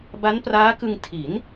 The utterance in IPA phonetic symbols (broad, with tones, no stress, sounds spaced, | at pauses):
b a˦˥ n p r aː˦˥ k ɯ˧ ŋ tʰ i˩˦ n